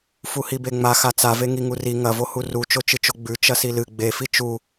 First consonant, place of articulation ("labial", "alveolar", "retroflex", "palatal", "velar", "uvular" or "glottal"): labial